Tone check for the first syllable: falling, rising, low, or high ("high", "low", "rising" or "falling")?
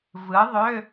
rising